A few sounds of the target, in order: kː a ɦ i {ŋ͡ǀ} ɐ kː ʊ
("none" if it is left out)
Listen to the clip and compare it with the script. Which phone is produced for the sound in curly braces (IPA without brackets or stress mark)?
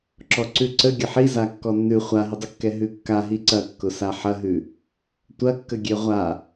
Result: ǀ